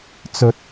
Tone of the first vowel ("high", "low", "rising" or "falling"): rising